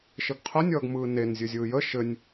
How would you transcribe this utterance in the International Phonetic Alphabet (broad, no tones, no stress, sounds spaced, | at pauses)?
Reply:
ʃ ə ɡ qʰ ə nʲ ʌː ɡ m ɯː n e n zʲ ɘ zʲ ɯː j ə ʃ ɘ nʲ